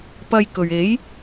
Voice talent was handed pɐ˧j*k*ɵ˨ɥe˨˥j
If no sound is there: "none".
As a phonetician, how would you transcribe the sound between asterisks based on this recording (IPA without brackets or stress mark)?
k